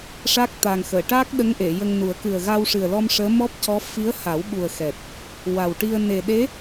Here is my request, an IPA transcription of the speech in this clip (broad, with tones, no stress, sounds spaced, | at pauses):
ʂ a˦˥ k̚ t̪ a˨˩ ŋ x əː˨˩˨ ʈ aː˦˥ k̚ ɗ ə˧˥ ŋ ʔ e˨˩˨ j ə˧ ŋ n u˨˩˦ ə̯ k ɨ˨˩ ə̯ ɣ a˧ w ʂ ɨ˨˩ ə̯ l ɔ˧ m ʂ əː˧˥ m ɔ˦˥ p̚ c ɔ˧˥ f i˧˥ ə̯ h a˨˩˦ w ɓ u˨˩ ə̯ x ɛ˨˩ t̚ | w a˨˩ w ʈ i˧ ə̯ n e˨˩ ɗ e˧˥